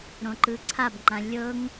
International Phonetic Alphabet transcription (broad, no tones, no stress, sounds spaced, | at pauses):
ɾ õ ǃ ɯ ǀʰ a b ŋ͡ǃ ã lʲ ɤ ŋ